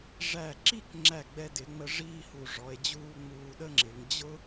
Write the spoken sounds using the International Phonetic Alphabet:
ʐ æ˧˩ ǁ i˥˧ k ŋ͡ǁ æ˧˩ ɡ͡b ɛ˧ d ɪ˩˧ ŋ͡m ə˧ ʐ iː˥˧ h u˧˩ ʐ ɔ˩˧ e̯ d͡ʑ uː˥˧ ŋ͡m uː˧ ɗ ə˥ ŋ͡ǁ ɪ˩˧ ŋ d͡ʑ ʊ˥

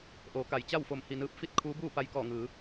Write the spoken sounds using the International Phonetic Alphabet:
ʔ oː˩˧ k a˩˧ j t͡ɕ a˥˨ w f o˧˩ m h i˧˩ n ɯː˧ p̚ f i˥˨ t̚ kʰ uː˧˥ b uː˥˨ p a˧ j k ɔː˧˩ ŋ ɯː˩˧

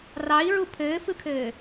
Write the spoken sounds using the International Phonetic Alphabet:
r ɑ i̯ ɹ u pʰ ɘː f ɯ kʰ ɘː

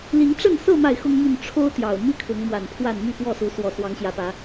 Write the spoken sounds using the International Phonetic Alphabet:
l i˨˦ ŋ ʈ͡ʂ ə˥˨ n s ɤ˥˨ m a˥˨ ɪ̯ x ʊ˦ ŋ m y˥˨ n ʈ͡ʂʰ o˦ ʊ̯ t̪ j ɑ˨˩ ʊ̯ m i˦ kʰ ʊ˨˦ ŋ m w a˨˩ n pʰ w a˥˨ n m y˥˨ p w ɔ˥˨ s u˨˦ s w ɔ˨˩ s w ɑ˨˦ ŋ ɕ j ä˨˦ p ä˨˦

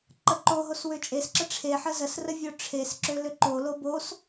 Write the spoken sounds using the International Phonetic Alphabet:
ǃ ə ǃ o ɦ o s w ø t͡ʃʼ e s ǁ ə ʈ͡ʂʰ e ħ ə z ə s r ə vʲ o ʈ͡ʂʰ e s ǁ ø l ø ǃ o l o b o s

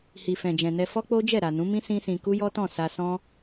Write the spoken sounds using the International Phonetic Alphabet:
h i˨ f ɛ̃˨ d͡ʒ ɛ̃˨ n ɛ˧ f ɔ˦ k͡p o˦ d͡ʒ ɛ˦˨ ɾ a˨ n ũ˨˦ m ĩ˦ s ĩ˦ s ĩ˧ k u˦ j ɔ˦ t ɔ̃˦˨ s a˧ s ɔ̃˦

